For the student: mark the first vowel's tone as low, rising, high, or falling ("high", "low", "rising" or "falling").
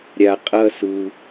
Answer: low